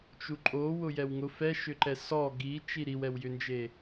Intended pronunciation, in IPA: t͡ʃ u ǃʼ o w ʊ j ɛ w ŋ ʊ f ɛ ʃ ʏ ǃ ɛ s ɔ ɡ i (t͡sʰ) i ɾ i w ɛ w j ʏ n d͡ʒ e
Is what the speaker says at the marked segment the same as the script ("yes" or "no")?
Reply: no